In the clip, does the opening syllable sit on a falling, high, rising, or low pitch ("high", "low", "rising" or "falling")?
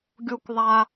high